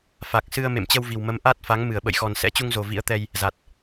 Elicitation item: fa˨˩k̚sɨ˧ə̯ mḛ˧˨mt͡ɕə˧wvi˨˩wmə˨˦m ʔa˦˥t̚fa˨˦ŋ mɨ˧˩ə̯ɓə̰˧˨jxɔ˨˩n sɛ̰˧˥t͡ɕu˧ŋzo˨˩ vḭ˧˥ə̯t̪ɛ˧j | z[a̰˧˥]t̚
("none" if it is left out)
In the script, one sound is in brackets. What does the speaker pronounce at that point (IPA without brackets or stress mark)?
a˨˩